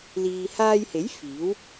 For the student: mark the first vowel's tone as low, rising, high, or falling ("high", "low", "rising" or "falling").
low